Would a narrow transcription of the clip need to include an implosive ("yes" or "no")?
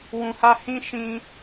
no